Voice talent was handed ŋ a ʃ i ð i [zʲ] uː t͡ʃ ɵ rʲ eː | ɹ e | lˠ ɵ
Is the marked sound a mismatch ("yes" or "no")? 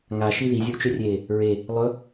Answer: no